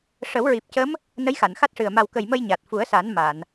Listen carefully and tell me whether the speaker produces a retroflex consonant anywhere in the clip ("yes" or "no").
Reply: yes